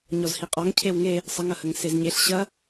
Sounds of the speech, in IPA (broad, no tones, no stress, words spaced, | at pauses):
ɲɔzhiqʼɔŋ cʰewŋe | sˤəŋɐhəŋ sezɲeɬ ɕɐ